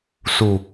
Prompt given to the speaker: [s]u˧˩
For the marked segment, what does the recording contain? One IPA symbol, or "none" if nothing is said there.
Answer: s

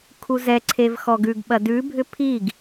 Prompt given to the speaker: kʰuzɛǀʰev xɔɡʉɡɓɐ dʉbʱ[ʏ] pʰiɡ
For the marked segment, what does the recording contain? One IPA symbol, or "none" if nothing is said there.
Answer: ʏ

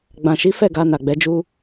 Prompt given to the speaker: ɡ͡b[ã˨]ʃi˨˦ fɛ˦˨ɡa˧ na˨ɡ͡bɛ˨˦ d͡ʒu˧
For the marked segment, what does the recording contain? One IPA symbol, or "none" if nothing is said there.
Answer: ã˨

